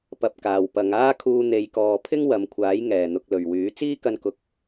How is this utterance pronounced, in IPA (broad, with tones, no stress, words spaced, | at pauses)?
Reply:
pɐ˧p̚kaː˨w pɐ˨˧ŋaː˥kʰuː˧ n̪e˨˧jkɔː˨ pʰɪ˥ŋwɐ˨˧mkʷʰaː˨˥j ŋɛː˨˩n̪ʊ˨k̚lɵ˨˩ɥ wyː˨˥ t͡siː˥kɐ˧nkʊ˨˥k̚